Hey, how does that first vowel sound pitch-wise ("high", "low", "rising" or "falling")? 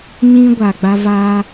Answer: high